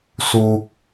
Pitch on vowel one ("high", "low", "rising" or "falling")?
high